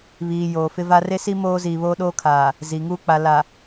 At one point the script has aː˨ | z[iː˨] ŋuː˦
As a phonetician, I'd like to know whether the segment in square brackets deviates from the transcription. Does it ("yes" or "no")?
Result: yes